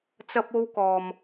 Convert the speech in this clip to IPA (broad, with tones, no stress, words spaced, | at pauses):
t͡sɐ˥p̚o˥wkɔː˨m